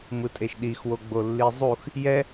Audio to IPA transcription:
m ɯ tʼ e ʃ ɗ i x w o ɡ͡b o lː i zˤ u x | j ɛ

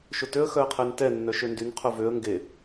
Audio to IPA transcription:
ʃ ʊ t ø ə̯ x œ ə̯ qʰ ɛ n t ɛ nː œ ʃ ø n d y n qʰ ʊ v ø ə̯ ŋ ɡ e

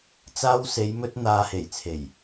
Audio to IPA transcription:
t͡s aː˧ w s e˨˧ j m ɵ˧ t̚ n̪ aː˨ h e˨˩ j t͡sʰ e˨˩ j

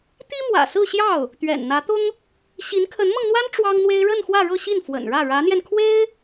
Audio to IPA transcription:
t̪ i˥ m w ä̰˨˩ s ɹ̩˥˧ ɕ j ɑ˥˩ ʊ̯ | t̪ ɥ ɛ̰˨˩ n n̪ ä˧˥ t̪ ʊ˥ ŋ | ɕ i˧˥ n kʰ ə˧˥ n m ɤ˧ ŋ n̪ w a˥ n ʈ͡ʂ w ɑ˥ ŋ n̪ w e˥ ɪ̯ ɻ ə˥˧ n x w ä˥˧ ɻ ɤ˥˧ ɕ i˥˩ n f w ə̰˨˩ n ɻ ä˥˩ ɻ ä˧˥ n̪ j ɛ˧ n kʰ w e˥ ɪ̯

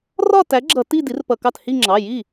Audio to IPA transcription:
r ɒ˥˧ t æ˨˥ ɡ͡ǁ ʌ˧˩˧ t i˥˧ d i˨˥ r p ʌ˧˩˧ k ɑ˥˩ t h i˥˧ ŋ͡ǁ ɑ˩˧˩ j i˥˩

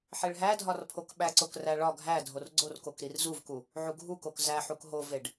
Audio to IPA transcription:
ħ e ɭ ɦ æ dʱ ɒ r pʰ o k ɓ æ ǀ o k r æ ɭ ɒ ɡʱ æ dʱ o r ɡ͡ǀ o r k o k ɾ i r z u v k u | ʕ u ɡʱ u k o k z æ ħ u k ɦ o v e ɖ

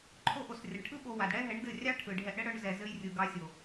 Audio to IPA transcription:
ǃʰ o˧ ʔ o˨ s rʲ ɘ˨ ɳ ʈʰ ɯ˦ ɓ o˧ w a˨ d ɽ ɛ˦ ɦ ɛ˨˦ ɳ d ɘ˦˨ rʲ ɑ˦ ʈʰ ɯ˨ ɖʱ ɛ˧ ʔ ɽ ɘ˦ ɽ œ˧ ɳ z ɛ˨ z ɘ˧ j rʲ ɯ˨ ɡ ɑ˧ sʲ o˨

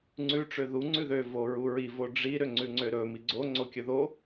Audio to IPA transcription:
ŋ͡ǀ ʉ ʈ͡ʂ ø ð u ŋ͡ǀ ʉ ð ø v o ɹ u ɹ i v o ɖ͡ʐ i ɾ ø ŋ͡ǀ ʉ ŋ͡ǀ ø ɾ ɵ m i ɡ͡ǀ o ŋ͡ǀ o kʲ ɵ ð o

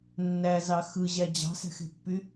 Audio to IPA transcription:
nː æ z ɑ x ɯ ʑ æ d͡ʑ ɑ̤ s æ̤ x e̤ pː y

